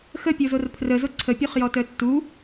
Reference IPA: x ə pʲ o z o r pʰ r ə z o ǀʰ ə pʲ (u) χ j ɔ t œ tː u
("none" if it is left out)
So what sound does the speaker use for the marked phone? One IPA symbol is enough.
o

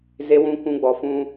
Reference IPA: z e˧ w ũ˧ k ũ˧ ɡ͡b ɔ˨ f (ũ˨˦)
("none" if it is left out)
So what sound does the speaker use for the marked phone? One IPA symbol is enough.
ũ˧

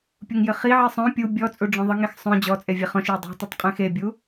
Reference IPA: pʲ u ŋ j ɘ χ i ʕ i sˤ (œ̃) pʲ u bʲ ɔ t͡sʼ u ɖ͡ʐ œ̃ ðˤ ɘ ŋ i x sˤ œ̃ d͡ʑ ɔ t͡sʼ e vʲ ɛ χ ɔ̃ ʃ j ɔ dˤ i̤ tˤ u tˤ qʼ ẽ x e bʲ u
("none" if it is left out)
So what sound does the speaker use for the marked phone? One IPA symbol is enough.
œ̃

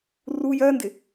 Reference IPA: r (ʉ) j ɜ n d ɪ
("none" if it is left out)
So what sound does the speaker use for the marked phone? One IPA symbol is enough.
u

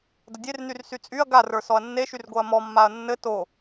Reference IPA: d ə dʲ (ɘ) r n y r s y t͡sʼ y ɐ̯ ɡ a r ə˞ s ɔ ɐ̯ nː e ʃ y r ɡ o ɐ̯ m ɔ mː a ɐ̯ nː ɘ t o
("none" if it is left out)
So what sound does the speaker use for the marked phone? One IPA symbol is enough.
e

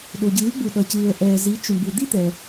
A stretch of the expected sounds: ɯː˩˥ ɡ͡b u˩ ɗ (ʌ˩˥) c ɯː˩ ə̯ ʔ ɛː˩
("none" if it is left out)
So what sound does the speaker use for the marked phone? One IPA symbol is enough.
ʌ˩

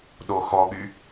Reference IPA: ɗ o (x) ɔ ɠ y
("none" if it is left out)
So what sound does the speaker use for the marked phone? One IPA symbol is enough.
x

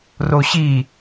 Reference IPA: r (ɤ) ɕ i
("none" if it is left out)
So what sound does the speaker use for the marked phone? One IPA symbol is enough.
o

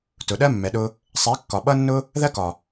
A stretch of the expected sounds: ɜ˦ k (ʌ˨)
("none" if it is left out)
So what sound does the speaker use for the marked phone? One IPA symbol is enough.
ɒ˨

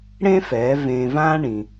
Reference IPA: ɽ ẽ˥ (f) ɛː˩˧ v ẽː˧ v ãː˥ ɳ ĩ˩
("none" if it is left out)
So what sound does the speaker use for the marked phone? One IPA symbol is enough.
f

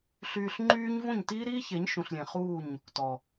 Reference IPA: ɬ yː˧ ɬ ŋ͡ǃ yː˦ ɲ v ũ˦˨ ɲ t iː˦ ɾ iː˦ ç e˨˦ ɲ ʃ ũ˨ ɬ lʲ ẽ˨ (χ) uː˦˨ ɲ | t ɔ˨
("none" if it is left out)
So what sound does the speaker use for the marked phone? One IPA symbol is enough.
χ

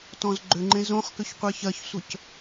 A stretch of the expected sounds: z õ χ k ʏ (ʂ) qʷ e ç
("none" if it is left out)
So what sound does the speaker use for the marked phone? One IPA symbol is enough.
ç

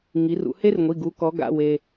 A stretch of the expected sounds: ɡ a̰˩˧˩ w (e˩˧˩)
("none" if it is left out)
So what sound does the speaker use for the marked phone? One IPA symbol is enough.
e˩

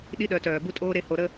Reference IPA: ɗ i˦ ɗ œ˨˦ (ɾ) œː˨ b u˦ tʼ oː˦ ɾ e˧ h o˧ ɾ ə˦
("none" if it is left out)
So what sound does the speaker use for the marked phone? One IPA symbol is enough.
t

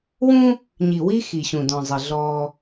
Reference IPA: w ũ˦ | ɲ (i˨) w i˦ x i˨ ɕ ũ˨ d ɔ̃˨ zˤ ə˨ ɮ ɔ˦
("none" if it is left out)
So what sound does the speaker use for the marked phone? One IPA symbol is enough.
i˨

